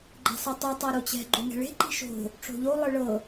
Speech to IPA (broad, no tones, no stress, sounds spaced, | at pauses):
ɡ͡ǃ ɛ̤ sˤ ɯ tˤ o tˤ a ɾ o t͡ɕ ɛ̤ ɡ͡ǃ o ŋ ɛ̤ ɭ e̤ ǃ i̤ ʃ o̤ | ʈ͡ʂ o̤ ʎ o lˠ ɯ ɭ ɤ